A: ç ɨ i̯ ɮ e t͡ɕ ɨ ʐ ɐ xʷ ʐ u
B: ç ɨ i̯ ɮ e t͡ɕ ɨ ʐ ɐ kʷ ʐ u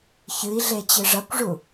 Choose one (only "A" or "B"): B